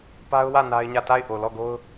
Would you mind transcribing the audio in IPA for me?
p a˦ ʊ̯ w ä˦˨ n a˦ ɪ̯ ɲ ä˦˨ t a˦˨ ɪ̯ ʔ o˨ l ɔ˦˨ ɡ o˦ ʊ̯

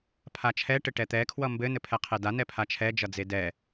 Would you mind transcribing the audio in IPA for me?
pʰ a t͡ʃʰ ɛ ʈ ɘ ʈ ɛ t̪ ɛ kʰ w ʌ m b ɘ n ɘ pʰ ɛ qʰ e d a n ɛ pʰ a t͡ʃʰ ɛ d͡ʒ ʌ d͡z e d ɛ

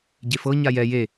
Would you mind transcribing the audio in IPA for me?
ɟ e f ɤ ɲ a j ɛ j e

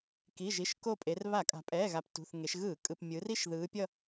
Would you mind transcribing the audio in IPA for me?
k i˩˧˩ ʒ i˩˧˩ ʃ k o˦˨ pʼ e˩˧ r β a˧˩˧ kʼ a̤˩˧ pʼ ɛː˩˧˩ ɣ a˩˧ p t ṳ˩˧˩ θ ŋ e˩˧ ʃ ɣ ɯː˧˩˧ kʼ ɯ˩˧˩ p mʲ ɯ˩˧ r i˦˨ ʃ ð ɯː˩˧ pʲ ʌ˦˨

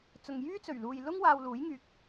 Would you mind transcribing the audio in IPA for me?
t͡s ʊ˨ ŋ j yː˥ t͡s ɵ˨˩ ɥ l uː˨ j l ʊ˥ ŋ w aː˧ w l uː˨˥ j ŋ yː˨ k̚

